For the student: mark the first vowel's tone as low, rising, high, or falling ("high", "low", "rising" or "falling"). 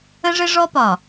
high